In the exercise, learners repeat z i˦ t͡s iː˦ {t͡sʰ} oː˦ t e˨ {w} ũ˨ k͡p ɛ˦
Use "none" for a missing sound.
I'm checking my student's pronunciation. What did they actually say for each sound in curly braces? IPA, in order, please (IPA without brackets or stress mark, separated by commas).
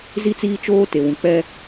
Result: t͡ʃ, w